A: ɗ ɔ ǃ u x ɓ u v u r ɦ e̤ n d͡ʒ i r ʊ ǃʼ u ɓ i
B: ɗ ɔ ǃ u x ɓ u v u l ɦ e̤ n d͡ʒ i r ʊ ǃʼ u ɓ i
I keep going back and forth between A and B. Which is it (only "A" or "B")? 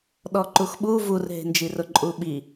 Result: A